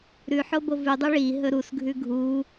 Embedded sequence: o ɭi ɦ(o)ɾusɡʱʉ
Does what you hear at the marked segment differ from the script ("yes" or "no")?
yes